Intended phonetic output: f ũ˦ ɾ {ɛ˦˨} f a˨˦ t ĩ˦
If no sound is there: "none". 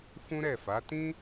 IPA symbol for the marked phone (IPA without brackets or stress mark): ɛ˦˨